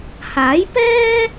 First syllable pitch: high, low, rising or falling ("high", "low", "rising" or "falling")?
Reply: rising